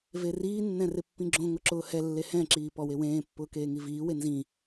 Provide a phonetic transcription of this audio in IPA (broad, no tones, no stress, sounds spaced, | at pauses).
v e r iː nː ɛ̃ r ɪ pː ĩ ɡ͡ǁ õ ŋ ʊ ǁ ʊː h ɛ lː e h ɛ̃ ǁ iː p ɔ w e w ẽː pː ʊː k eː ŋ i v iː w e n z ĩ